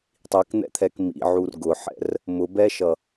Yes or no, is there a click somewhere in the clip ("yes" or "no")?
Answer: no